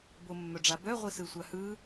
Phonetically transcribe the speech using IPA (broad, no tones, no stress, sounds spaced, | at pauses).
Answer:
b o mː œ ɖ͡ʐ a b œ ʁʷ i s ɯ sʷ a h ɯ